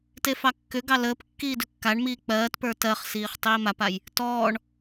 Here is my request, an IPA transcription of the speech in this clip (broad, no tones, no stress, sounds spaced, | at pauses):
t e f ɑ kː ʏ ɡ ɑ l əː p kː iː d ʏ kː a ɳ m iː k͡p ɜː t p ə˞ t ɜ χ s iː χ tˤ iː m a p a j | t ɔː ɳ